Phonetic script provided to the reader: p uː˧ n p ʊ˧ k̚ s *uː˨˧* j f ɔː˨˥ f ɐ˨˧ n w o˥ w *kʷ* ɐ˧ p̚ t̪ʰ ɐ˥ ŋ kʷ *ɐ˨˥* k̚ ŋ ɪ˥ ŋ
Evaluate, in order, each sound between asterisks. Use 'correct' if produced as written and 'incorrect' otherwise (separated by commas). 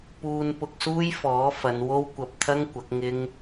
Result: incorrect, correct, correct